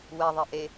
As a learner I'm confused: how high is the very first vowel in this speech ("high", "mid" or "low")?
mid